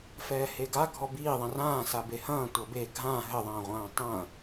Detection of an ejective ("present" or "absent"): absent